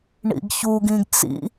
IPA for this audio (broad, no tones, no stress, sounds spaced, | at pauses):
ɳ ḭ ɡ ç u ɡ ĩ ɡ t͡s ḭ